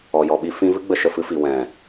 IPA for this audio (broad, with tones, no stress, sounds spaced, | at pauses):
ɔ˨ j ɔ˨ ɓ i˧ f ĩ˦ v ɨ˦ ɡ͡b ə˧ ʃ ə˨ f ɨ˧ f i˨ w ɛ̃˨